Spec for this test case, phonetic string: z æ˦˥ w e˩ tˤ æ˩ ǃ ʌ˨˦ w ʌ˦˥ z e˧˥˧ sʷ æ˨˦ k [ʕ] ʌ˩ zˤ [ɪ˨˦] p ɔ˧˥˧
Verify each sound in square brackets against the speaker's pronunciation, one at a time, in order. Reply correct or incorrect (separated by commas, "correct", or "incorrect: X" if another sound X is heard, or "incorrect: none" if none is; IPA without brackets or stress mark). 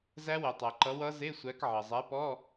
correct, incorrect: ɛ˨˦